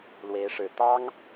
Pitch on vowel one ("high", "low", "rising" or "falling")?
rising